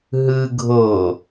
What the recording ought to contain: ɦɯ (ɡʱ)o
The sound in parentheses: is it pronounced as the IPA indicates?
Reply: yes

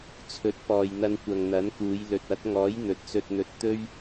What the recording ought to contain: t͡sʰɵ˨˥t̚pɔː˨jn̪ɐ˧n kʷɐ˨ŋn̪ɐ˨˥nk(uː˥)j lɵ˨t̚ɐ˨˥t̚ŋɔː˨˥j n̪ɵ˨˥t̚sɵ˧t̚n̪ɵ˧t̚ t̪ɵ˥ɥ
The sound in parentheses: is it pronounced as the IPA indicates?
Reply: no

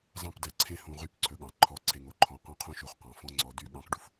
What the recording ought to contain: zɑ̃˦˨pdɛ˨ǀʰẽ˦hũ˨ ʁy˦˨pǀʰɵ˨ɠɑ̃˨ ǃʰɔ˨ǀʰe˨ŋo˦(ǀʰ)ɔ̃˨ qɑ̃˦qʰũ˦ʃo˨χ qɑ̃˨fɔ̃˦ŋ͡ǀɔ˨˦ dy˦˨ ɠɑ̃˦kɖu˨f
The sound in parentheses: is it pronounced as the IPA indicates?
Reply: no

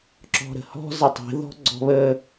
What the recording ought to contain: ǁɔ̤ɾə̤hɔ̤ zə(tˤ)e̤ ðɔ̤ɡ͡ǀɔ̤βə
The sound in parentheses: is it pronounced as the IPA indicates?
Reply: yes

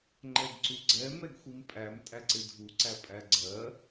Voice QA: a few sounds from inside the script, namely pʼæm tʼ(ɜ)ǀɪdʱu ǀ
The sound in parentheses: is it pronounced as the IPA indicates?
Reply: no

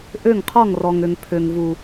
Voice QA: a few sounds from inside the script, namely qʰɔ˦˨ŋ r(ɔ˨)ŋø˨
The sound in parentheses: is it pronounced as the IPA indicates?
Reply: yes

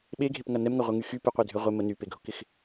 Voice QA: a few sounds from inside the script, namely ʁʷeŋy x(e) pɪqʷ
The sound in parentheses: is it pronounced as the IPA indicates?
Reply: no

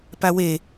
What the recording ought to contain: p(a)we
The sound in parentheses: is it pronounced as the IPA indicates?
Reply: yes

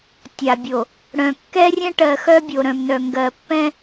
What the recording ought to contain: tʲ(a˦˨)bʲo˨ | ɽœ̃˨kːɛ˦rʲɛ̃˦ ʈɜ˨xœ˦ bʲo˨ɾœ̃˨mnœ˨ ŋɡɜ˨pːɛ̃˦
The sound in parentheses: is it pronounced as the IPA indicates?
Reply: no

